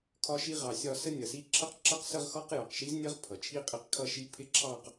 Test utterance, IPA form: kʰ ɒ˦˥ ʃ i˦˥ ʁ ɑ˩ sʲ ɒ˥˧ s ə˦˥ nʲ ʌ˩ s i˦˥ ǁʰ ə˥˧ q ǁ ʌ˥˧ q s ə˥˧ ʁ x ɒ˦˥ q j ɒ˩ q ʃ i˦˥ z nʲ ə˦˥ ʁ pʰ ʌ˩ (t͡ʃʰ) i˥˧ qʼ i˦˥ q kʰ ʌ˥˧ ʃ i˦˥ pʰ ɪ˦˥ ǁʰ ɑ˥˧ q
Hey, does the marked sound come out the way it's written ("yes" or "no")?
yes